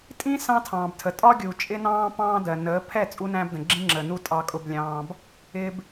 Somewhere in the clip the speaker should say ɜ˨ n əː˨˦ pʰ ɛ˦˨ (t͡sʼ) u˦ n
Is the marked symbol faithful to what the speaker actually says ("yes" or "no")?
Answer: yes